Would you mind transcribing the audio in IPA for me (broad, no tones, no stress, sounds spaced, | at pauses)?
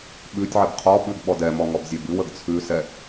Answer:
ɓ ʉ tʲ ʕ ɛ b qʰ ɔ ɓ ʉ ɡ ɓ ɔ d ɛ m ɔ ŋ ɔ b zʲ ɛ b ʉ w ə ɡ t͡sʰ ʉ s ɛ